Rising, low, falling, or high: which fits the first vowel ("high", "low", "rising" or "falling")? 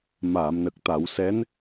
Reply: low